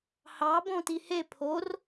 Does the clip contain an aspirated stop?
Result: yes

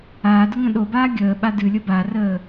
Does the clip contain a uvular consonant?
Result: no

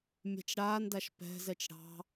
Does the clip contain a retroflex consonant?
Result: yes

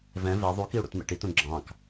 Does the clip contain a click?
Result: yes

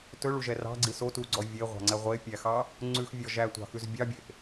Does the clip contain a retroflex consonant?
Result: yes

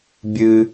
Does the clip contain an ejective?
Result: no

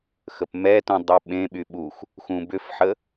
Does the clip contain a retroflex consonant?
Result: no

